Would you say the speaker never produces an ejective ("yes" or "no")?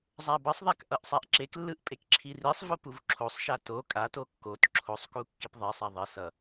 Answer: no